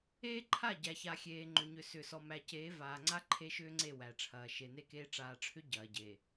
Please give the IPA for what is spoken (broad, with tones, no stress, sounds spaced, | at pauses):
eː˦ ǃʰ a˦˨ ɟ æ˨ ç a˨ xʲ eː˨ ŋ͡ǃ ʏ˨ ɲ ʏ˨ s ʏ˨ s ɔ˨ m æ˨ c eː˨˦ v aː˨ ŋ͡ǀ a˦ ǃʰ e˦ ʃ ʏː˦ ŋ͡ǀ e˦˨ w æ˨ ʈ͡ʂʰ ɐː˨ ʃ e˨ n e˦ k eː˦ ʈ͡ʂ aː˨ ʈ͡ʂʰ ʏ˦ ɟ ɐː˨ ɟ e˨